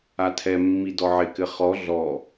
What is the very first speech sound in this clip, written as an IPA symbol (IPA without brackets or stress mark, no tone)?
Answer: a